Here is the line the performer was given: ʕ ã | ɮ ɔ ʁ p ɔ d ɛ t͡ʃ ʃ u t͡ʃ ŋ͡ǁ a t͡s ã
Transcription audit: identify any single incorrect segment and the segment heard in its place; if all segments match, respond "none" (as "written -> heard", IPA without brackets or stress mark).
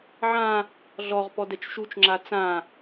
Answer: none